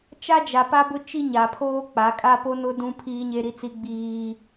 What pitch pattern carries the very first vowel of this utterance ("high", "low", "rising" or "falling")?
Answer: high